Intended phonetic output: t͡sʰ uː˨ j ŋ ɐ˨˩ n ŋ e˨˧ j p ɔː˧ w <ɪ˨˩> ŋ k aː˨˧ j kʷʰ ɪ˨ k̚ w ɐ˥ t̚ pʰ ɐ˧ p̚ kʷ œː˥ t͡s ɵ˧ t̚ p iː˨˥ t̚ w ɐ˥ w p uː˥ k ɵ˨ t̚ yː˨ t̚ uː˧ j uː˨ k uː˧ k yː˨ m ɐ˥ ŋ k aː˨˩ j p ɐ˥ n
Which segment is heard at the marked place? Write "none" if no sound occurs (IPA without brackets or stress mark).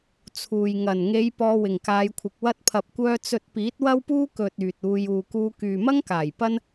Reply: ɪ˨˩